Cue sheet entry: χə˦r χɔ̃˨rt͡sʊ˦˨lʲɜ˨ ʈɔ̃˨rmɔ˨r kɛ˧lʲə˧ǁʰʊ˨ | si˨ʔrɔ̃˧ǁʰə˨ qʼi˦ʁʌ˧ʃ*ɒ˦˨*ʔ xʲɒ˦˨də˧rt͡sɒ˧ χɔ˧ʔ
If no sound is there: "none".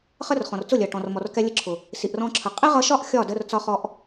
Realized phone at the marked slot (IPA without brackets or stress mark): ɒ˦˨